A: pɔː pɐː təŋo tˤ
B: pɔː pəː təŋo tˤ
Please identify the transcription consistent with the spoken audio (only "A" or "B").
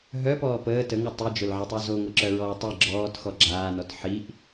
B